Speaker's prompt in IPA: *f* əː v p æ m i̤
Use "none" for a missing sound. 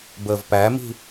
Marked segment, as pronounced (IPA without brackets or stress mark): b